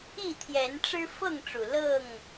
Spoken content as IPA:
i˥˨ t̪ʰ j ɛ˨˦ n ʈ͡ʂ ɻ̩˦ f ɤ˥˨ ŋ ʈ͡ʂ u˨˩ l ɤ˥˨ ŋ

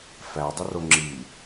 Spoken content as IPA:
f æ dˤ ə r o ŋ͡ǁ i

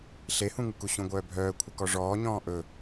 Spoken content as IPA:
ɬ e h ũ ŋ ɯ k u ɕ ũ ɡʷ œː bʱ œː kʷʰ ə k ɔ ʐ ɔː ɲ ɔ̃ː ʔ ɵ

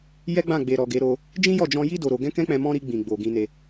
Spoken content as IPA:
j ɛ˦ ɡ͡b ã˦˨ ɡ͡b e˨ ɾ ɔ˨ ɡ e˨˦ ɾ o˧ | d͡ʒ ĩ˦ j ɔ˦˨ d͡ʒ ɔ̃˧ j i˦ d o˧ ɾ o˧ ɡ ɛ̃˦ k ɛ̃˦ k͡p ɛ̃˧ m ɔ̃˦ ɾ i˧ ɡ͡b ĩ˨ ɡ͡b o˨ ɡ ĩ˧ n e˧

